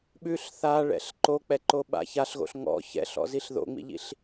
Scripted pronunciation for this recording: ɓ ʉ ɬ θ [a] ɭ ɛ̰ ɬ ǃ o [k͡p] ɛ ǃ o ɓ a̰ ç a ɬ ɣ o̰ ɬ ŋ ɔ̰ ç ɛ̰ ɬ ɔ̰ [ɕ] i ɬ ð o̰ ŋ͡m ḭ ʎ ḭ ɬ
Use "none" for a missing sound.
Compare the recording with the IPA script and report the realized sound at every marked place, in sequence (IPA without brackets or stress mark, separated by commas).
a, k͡p, z